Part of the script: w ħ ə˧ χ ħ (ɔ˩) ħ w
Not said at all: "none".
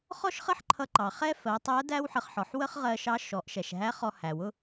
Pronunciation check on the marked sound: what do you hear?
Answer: ɔ˩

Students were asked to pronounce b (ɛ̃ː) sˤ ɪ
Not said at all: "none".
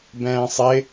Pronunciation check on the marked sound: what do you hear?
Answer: ɛ̃ː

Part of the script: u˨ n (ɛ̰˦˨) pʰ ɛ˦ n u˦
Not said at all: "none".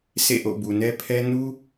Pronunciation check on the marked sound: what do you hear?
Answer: ɛ˦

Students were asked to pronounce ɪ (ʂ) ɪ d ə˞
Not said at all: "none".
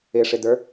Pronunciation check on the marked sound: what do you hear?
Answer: ʂ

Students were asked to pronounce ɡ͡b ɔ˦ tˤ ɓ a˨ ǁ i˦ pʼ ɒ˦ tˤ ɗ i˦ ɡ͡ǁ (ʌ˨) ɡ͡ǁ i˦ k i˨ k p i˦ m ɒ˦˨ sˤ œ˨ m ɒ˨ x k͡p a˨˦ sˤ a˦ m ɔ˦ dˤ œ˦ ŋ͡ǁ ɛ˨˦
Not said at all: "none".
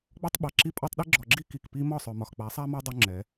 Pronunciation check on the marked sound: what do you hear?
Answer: ɔ˨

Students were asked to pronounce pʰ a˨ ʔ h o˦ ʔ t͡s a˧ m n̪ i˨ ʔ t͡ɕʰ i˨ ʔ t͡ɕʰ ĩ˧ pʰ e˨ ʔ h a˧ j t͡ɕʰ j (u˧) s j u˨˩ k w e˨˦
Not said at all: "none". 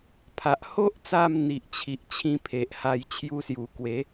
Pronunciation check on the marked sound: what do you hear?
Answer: u˧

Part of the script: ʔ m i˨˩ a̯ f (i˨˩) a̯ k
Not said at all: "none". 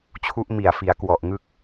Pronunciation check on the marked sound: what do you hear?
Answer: i˩˦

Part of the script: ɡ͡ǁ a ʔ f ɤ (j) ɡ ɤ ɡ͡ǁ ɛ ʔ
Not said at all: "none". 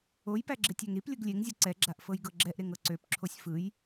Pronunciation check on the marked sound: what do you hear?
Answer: j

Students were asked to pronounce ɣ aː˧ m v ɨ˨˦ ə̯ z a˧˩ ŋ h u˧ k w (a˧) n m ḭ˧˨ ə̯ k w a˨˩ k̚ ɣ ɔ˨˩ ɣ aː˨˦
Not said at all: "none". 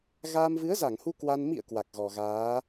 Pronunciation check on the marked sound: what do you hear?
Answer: a˧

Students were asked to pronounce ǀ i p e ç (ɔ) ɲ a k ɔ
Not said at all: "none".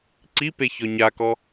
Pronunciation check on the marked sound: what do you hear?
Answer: ɔ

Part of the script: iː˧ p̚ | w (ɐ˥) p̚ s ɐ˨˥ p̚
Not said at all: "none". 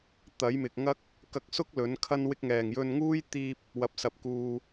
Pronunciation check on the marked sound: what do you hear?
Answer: ɐ˨˥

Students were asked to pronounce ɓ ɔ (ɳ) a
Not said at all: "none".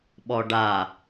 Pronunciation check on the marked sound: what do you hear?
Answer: ɖ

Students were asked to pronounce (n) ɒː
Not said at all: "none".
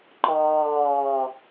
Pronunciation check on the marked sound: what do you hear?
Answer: ǃ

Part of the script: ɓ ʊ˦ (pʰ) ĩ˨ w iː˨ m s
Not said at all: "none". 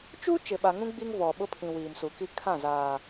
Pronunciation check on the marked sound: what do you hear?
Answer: pʰ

